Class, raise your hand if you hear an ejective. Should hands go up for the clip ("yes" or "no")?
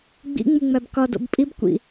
yes